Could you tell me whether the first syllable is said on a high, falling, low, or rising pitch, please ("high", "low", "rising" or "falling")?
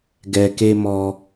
low